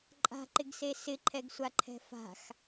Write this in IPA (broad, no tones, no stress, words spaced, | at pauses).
ǃʼa̤ǃɪɡse sɪǃʰɛɡsʷaǃʰɛ̤ fa̤x